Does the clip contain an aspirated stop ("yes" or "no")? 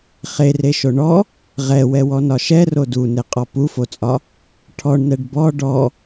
yes